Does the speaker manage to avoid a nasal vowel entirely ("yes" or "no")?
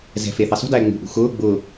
yes